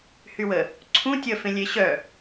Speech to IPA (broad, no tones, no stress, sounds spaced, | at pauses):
h y w ə | ǀʰ ũ tʲ ə f ẽ lʲ e ɕ œ